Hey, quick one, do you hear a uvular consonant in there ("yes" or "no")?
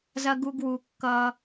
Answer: no